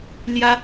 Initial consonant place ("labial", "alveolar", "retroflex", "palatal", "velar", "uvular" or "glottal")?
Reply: alveolar